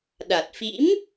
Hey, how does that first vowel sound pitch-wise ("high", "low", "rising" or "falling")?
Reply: low